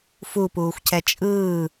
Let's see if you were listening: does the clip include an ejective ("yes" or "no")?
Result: yes